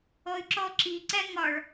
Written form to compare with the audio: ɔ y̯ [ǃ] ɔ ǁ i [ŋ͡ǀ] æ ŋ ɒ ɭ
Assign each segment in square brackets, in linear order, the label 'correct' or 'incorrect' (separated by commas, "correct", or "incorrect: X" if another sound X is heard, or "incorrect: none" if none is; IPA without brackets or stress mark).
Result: incorrect: ǁ, incorrect: ǀ